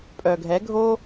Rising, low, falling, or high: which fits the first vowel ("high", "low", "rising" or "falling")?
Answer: low